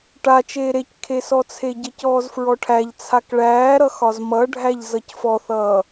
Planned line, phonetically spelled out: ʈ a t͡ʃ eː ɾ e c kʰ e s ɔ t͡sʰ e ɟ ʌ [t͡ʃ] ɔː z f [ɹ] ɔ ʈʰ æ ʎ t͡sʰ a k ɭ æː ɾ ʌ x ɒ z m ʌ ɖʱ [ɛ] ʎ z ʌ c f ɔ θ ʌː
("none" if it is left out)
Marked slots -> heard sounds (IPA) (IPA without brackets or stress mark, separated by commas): c, ɹ, æ